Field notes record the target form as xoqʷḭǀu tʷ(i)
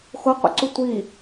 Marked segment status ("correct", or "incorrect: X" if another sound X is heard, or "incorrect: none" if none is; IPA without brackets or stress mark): correct